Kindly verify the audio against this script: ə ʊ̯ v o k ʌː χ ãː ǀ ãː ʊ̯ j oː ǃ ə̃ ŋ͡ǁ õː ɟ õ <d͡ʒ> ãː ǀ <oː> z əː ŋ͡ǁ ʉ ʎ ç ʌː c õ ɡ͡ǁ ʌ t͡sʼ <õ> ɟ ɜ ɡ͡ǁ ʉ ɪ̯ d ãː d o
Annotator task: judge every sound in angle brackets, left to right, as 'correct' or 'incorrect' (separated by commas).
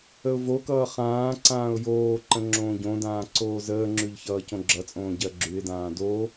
incorrect, correct, incorrect